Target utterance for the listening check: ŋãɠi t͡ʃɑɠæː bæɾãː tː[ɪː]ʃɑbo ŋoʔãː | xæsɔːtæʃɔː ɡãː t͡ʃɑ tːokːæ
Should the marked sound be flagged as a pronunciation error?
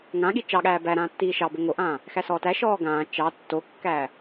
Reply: yes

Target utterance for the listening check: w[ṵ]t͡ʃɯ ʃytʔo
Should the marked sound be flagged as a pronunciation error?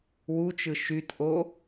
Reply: yes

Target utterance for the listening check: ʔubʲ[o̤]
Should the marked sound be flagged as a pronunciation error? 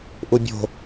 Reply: no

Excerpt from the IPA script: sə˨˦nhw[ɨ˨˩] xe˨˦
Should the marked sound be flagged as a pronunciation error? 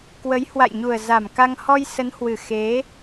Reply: no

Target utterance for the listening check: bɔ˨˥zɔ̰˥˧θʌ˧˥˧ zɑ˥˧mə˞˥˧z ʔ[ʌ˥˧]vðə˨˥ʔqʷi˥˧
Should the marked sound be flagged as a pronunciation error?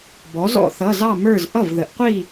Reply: yes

